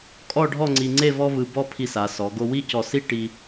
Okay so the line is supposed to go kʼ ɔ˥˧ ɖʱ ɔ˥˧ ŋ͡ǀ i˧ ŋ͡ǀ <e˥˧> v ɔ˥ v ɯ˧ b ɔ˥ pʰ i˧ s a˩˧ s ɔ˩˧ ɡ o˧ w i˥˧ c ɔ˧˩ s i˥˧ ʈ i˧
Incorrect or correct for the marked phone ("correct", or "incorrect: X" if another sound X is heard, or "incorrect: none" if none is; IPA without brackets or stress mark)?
correct